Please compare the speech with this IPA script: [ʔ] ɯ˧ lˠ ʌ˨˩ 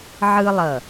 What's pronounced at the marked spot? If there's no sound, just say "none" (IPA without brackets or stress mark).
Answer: ʕ